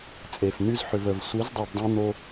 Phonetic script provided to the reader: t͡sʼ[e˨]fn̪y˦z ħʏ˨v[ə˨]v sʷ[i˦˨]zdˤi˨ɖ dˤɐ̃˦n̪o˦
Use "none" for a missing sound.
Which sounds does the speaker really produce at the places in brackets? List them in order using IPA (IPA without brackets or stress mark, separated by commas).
e˨, ə˨, i˨˦